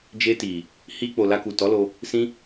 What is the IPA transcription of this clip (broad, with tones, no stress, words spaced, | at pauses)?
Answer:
d͡ʒe˧ti˨ | hi˧k͡po˨ la˧ku˨tɔ˨˦lo˧ | sĩ˦